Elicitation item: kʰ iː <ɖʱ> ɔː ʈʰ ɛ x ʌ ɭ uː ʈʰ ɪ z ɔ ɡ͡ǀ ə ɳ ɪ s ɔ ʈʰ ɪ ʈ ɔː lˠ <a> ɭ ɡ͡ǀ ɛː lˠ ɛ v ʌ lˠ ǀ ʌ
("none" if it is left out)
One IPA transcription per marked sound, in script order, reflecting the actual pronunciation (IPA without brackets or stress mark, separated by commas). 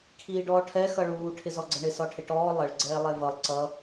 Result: ɖ, ə